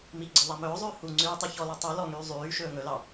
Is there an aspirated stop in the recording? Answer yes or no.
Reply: no